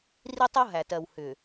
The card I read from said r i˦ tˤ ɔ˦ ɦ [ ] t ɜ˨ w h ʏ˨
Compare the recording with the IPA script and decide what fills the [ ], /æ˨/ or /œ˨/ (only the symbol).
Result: æ˨